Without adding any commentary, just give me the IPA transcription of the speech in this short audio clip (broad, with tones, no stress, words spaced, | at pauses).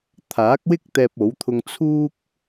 t̪ʰaː˨˥k̚wɪ˥k̚ t̪ɛː˧p̚o˨˥wt̪ʰʊ˧ŋ t͡sʰuː˧k̚